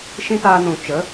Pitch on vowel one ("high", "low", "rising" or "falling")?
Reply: high